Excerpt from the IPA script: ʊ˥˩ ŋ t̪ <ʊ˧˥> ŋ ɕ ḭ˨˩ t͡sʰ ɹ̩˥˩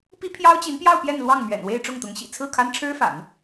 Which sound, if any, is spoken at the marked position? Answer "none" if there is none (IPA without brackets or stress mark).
ʊ˧˥